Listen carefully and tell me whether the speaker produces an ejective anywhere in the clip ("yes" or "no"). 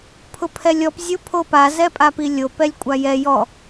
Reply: yes